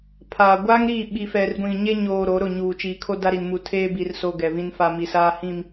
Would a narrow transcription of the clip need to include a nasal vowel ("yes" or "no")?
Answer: yes